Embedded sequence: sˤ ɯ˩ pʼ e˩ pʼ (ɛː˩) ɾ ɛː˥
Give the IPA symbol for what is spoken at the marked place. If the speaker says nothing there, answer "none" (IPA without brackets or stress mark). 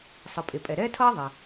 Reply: ɛ˩